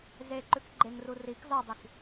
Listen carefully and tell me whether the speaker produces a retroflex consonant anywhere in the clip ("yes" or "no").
no